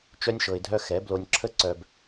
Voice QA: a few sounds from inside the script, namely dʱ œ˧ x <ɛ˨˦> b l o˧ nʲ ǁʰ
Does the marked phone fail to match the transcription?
no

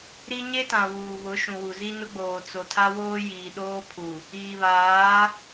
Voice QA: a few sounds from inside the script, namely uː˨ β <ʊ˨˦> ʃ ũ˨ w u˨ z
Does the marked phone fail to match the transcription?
no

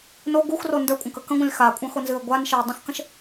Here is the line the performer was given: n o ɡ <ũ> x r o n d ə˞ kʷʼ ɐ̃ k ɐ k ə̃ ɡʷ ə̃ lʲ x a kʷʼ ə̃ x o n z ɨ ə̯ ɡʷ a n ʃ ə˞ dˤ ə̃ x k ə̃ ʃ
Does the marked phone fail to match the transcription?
yes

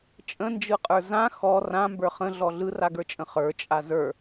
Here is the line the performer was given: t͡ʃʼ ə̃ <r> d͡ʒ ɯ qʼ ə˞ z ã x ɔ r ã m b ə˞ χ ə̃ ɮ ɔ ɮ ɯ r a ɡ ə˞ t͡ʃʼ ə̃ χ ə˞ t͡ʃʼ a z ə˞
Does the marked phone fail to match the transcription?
yes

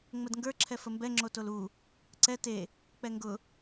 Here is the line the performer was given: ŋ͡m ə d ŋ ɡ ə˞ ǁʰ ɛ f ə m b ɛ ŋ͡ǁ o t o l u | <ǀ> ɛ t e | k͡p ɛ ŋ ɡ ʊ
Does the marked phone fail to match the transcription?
no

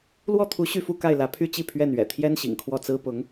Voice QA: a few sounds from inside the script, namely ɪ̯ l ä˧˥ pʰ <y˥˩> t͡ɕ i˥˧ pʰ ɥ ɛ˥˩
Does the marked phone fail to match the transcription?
yes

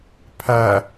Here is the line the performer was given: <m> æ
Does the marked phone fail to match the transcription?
yes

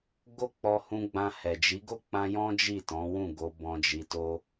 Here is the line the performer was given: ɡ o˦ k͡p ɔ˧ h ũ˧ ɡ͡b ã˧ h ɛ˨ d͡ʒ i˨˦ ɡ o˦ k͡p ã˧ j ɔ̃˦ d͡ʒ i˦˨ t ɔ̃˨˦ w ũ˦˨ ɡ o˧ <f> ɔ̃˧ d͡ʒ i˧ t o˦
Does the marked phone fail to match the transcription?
yes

